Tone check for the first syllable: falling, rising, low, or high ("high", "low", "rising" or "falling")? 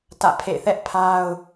falling